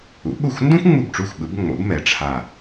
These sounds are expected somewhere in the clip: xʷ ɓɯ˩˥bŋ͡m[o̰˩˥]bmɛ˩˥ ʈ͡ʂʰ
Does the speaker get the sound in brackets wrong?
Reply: no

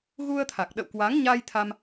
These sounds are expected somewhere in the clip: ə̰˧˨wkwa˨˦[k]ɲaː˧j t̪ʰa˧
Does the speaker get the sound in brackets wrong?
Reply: yes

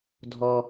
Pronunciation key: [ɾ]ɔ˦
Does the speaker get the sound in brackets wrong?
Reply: yes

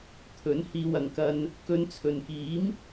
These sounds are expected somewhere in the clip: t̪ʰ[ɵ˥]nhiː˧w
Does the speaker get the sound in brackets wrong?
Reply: yes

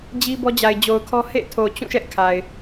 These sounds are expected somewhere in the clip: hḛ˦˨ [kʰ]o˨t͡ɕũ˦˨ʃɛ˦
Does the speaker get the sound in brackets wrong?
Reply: yes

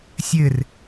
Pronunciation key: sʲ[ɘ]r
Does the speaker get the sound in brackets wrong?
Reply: no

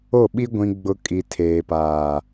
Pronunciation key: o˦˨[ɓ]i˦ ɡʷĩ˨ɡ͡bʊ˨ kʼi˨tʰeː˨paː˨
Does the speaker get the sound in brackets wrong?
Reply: no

